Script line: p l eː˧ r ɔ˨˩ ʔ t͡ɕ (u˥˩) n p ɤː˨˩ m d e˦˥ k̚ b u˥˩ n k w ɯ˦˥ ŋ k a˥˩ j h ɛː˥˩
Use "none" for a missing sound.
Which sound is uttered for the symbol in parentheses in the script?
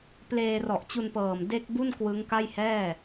u˧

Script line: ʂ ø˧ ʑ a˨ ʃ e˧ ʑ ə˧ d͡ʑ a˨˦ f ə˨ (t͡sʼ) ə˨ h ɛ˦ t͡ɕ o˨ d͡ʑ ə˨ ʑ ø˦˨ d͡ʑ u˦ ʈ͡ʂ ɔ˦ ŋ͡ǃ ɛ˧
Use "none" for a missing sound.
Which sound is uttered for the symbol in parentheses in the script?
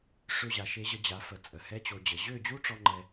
t͡sʼ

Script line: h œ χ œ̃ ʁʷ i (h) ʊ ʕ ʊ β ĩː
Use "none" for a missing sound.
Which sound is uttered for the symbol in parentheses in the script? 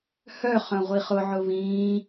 χ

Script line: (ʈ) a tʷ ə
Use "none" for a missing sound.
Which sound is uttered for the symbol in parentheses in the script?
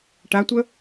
ʈ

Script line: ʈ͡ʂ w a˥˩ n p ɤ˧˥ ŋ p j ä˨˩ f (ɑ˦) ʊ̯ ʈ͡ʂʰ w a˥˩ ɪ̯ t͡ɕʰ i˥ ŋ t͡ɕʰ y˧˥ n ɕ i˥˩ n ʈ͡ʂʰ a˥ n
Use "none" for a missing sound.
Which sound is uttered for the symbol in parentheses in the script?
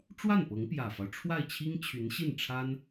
ɑ˦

